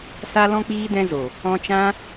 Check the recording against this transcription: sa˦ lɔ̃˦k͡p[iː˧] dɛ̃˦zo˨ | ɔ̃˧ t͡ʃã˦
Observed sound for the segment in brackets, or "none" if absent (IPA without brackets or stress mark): iː˦